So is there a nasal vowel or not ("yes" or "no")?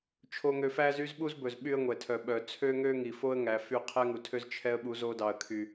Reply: no